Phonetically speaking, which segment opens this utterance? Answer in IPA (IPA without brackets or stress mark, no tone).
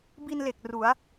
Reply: b